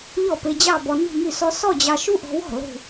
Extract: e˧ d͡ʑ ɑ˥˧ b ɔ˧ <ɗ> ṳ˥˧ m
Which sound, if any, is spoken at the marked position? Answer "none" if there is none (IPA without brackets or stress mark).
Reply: n